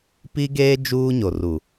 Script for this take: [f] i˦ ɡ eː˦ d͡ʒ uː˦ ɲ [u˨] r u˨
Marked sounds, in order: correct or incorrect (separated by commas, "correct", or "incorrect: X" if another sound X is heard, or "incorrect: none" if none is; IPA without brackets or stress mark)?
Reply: incorrect: p, incorrect: o˨